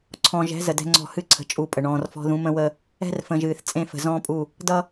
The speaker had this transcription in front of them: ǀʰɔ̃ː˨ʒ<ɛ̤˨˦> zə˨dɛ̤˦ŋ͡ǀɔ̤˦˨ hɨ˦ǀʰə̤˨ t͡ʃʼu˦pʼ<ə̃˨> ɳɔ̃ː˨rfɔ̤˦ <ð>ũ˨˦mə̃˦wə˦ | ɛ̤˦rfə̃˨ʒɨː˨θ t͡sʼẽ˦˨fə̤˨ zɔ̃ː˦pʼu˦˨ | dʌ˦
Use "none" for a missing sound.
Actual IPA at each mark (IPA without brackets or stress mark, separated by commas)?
ɛ̤˨˦, ə˨, ð